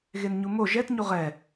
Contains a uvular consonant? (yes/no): yes